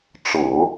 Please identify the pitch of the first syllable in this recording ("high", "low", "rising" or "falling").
low